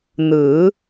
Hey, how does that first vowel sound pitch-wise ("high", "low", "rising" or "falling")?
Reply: rising